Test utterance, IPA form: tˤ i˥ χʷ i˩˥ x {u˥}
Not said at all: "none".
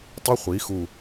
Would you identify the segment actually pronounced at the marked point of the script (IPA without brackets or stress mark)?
u˧˩